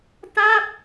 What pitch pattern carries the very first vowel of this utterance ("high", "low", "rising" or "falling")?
falling